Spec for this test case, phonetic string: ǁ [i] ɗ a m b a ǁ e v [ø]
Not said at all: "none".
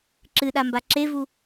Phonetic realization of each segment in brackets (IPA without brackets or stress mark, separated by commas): ɨ, u